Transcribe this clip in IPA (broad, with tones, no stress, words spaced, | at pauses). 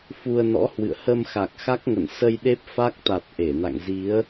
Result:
fu˧ə̯nɔ̰˧˥ hwɨ̰˧˨ə̯ hə˧mxa˨˩k̚ xa˦˥k̚ŋə̰˧˨n sə˧j ɗe˦˥p̚fa˦˥k̚ t̪a˨˩t̚ ʔe˧˩na̰˧˨ŋ zi˨˦ə̯